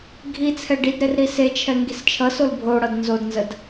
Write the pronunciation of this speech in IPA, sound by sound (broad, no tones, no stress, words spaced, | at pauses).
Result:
ɡʱit͡sʰɛ ɖidɾer ɾiset͡ʃʰɛ ŋɡist͡ʃʰʌsol bʱoɽʌd nzodnzəd